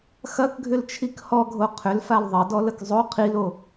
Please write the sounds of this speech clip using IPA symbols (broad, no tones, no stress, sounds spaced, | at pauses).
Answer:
x ɐ k ɡʱ ʏ l t͡ʃʰ i k h ɔ ɡʱ o qʰ ʏ l f a l ðˤ ɐ d ɔ l ə k zˤ o qʰ i l o